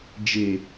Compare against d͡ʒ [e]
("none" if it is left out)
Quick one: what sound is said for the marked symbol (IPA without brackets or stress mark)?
e